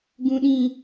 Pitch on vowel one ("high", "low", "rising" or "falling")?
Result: low